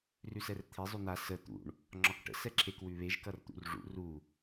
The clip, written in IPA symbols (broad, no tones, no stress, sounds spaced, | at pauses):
r ʉ s ɛ r t̪ʰ e zˤ ʉ n̪ a s ə t̪ ṵ ɳ | ŋ͡ǁ ɒ k ʈ ə̰ s ɛ ǁʰ e k w ʉ β e ʒ k ʌ r t̪ ṵ r ʐ ṵ r u